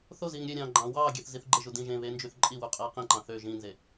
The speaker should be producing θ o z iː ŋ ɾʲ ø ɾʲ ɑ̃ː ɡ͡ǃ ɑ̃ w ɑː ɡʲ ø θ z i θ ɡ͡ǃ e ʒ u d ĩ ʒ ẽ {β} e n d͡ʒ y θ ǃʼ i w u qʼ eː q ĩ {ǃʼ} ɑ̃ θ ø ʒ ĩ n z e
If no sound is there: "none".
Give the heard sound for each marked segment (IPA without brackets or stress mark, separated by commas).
β, ǃ